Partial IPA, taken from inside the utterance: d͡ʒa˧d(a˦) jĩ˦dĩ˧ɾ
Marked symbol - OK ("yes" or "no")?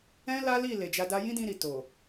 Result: yes